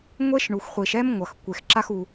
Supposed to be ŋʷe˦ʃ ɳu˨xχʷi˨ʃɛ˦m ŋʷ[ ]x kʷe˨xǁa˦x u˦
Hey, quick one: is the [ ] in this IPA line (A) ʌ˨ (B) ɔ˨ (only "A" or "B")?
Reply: A